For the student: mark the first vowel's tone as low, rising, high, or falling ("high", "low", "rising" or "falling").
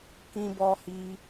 high